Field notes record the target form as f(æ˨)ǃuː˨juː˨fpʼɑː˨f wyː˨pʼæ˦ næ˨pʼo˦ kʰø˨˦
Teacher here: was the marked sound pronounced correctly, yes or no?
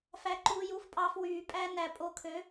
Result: yes